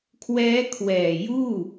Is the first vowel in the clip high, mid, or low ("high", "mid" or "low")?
mid